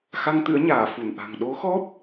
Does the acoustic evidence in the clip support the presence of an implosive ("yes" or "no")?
yes